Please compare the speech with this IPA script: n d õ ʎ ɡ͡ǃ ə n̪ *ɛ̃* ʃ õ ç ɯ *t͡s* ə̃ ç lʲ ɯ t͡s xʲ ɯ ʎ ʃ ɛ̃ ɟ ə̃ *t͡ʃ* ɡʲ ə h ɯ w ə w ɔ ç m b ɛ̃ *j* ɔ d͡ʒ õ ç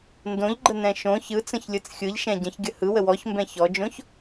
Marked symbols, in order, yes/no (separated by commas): yes, yes, no, no